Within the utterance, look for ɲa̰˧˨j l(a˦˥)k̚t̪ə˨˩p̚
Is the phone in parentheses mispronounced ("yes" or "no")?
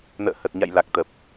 yes